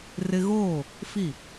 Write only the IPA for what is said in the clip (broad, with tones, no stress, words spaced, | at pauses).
rɪ˦ ɣoː˦˨ | fi˦˨